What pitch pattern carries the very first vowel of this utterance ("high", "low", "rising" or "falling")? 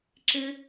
high